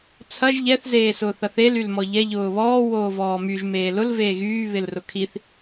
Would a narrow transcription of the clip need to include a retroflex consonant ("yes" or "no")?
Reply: no